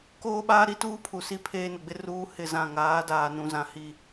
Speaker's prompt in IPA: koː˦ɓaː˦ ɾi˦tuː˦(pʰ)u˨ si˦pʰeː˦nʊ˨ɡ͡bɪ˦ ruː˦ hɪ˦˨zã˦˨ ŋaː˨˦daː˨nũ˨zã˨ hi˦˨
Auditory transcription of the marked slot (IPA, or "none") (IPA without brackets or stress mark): pʰ